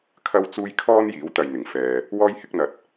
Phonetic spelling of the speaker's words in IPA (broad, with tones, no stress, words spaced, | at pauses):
kʰɐ˥wt͡suː˥j kʰɔː˥n jiː˨˥wt̪ɐ˨jn̪ɪ˨˩ŋ fɛː˨ | wɔː˥j hɪ˥k̚n̪ɐ˧t̚